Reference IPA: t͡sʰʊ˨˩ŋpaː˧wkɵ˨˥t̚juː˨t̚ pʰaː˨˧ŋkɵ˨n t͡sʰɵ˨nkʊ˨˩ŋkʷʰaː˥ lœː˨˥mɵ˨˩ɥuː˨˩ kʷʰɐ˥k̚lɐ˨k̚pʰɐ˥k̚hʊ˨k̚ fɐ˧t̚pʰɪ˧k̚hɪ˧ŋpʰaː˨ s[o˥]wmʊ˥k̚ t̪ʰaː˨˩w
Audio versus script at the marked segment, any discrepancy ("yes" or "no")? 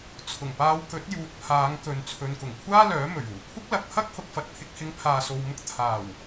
yes